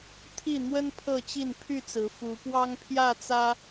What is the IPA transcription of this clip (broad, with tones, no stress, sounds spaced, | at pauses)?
t̪ʰ i˥˨ n̪ w ə˦ n pʰ ɤ˥˨ t͡ɕ i˥˨ n pʰ y˥˨ t͡s ɹ̩˨˦ f u˨˦ p w ɑ˦ ŋ pʰ j ä˥˨ t͡s ä˦